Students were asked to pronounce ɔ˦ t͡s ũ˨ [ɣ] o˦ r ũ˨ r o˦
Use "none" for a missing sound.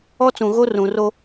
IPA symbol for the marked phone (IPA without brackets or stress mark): ɣ